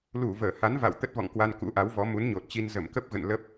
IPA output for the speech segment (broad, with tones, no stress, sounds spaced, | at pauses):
l u˧˩ v əː˧˩ h a˨˦ n v a̰˧˨ w t̪ ə˦˥ t̚ v ɔ̰˧˨ ŋ k w a˧ n k ṵ˧˥ ʔ a˨˦ w v ɔ˨˦ m u˨˦ n ɲ o˨˩ t̚ t͡ɕ i˧ n z ə˧˩ m k ə˦˥ p̚ ɣ ə̰˧˨ n l ə˦˥ p̚